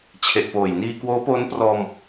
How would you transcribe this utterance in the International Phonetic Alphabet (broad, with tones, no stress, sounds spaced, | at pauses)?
t͡ɕʰ e˨˩ ʔ p oː˨˩ j n iː˧ k w oː˦˥ p oː˦˥ n p r ɔː˧ m